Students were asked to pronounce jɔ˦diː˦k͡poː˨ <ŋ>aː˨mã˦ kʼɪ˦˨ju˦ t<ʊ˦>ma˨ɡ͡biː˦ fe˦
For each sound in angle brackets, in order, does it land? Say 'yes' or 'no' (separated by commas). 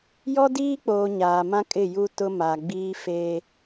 no, yes